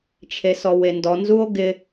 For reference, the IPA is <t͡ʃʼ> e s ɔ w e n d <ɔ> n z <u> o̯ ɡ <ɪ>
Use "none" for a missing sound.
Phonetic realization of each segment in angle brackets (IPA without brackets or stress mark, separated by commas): t͡ʃʰ, ɔ, u, ɪ